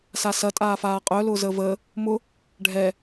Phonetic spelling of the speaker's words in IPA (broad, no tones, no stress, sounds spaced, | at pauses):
s a s ɐ tʼ aː f aː qʼ œ l ʊː z əː v əː | m ʊ | ɖʱ ɛ